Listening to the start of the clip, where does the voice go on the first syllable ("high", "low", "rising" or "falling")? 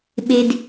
high